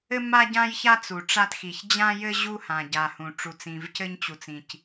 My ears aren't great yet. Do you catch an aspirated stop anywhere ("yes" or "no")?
no